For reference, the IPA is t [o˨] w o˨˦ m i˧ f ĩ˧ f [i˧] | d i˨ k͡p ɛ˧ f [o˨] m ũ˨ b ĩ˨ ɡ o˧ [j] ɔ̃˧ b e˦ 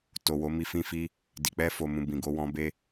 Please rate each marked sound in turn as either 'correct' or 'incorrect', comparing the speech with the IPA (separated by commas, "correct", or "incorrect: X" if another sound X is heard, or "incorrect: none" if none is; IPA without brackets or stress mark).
correct, correct, correct, incorrect: w